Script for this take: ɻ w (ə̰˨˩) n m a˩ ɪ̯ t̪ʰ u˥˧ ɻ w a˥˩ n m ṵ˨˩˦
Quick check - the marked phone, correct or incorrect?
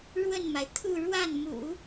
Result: incorrect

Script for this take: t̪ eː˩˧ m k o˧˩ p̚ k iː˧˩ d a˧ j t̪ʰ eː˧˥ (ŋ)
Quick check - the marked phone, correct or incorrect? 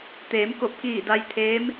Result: incorrect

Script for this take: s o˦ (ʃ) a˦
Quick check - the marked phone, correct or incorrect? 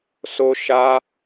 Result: correct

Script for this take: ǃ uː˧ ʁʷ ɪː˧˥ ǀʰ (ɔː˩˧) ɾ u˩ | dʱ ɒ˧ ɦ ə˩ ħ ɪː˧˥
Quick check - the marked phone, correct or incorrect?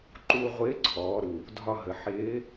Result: correct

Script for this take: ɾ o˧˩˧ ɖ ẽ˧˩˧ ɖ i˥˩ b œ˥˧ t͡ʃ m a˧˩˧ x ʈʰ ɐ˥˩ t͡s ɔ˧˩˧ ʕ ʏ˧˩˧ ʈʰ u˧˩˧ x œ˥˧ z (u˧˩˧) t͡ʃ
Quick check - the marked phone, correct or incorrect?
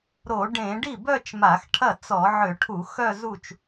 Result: incorrect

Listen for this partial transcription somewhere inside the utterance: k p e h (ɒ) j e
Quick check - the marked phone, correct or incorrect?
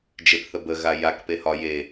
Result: correct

